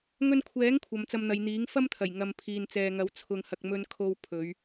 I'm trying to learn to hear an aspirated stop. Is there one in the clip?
yes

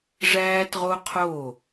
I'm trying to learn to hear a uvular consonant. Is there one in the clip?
yes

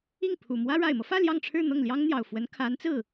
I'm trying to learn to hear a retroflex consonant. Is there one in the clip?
yes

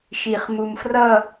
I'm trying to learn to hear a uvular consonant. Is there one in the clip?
yes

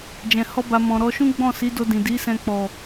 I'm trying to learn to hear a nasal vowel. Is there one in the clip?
yes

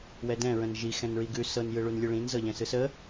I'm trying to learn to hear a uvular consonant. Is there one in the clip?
no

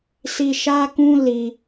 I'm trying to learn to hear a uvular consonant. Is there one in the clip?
no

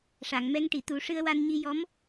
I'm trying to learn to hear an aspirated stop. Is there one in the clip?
no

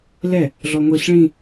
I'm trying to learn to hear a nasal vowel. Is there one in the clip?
yes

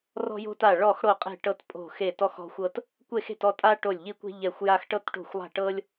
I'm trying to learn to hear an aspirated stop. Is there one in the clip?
no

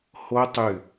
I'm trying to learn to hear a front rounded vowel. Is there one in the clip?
yes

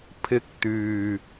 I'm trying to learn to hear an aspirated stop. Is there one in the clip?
yes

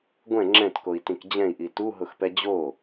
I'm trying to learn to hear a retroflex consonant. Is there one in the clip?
no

